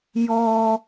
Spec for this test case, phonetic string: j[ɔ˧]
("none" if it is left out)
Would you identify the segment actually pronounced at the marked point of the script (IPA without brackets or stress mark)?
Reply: ɔ˧